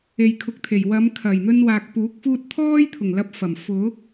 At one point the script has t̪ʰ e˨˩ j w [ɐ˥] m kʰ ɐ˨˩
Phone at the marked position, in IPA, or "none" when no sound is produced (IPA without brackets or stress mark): ɐ˨˧